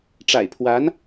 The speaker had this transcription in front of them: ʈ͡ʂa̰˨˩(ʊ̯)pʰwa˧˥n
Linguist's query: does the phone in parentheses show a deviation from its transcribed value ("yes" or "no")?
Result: yes